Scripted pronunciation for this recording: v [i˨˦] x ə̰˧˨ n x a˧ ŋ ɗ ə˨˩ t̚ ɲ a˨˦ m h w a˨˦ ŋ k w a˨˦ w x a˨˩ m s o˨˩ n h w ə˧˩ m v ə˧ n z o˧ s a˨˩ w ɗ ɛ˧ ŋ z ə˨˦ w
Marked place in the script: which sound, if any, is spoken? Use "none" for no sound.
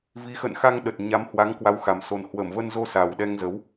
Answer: i˨˦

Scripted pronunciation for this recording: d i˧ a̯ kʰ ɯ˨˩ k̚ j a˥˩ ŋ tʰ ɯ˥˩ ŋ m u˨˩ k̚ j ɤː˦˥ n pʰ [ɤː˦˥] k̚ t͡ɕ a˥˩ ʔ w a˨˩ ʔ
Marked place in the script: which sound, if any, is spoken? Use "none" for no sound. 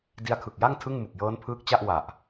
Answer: ɯː˦˥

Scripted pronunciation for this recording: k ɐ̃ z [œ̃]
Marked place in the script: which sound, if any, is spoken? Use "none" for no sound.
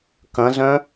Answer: œ̃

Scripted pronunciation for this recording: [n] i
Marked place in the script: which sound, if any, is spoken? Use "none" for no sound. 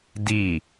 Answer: d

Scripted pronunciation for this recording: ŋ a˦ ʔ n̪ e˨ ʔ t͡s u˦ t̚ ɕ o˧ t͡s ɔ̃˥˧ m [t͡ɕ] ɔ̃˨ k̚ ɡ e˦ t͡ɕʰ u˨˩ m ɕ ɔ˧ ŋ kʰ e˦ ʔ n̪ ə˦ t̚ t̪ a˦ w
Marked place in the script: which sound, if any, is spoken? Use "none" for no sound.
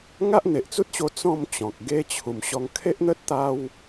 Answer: t͡ɕ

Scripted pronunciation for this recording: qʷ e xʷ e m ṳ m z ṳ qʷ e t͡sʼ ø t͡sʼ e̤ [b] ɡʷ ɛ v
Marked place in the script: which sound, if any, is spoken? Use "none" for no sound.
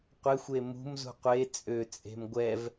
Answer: m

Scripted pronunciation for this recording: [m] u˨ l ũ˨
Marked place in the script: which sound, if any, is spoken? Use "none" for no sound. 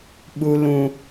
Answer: ɓ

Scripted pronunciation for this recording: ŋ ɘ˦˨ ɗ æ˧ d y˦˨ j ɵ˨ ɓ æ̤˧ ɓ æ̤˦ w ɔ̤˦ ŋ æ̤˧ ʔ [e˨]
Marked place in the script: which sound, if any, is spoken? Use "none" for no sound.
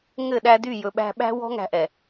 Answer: ɛ˨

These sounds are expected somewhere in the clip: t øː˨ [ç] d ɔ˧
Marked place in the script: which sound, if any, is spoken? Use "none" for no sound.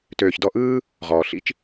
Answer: ç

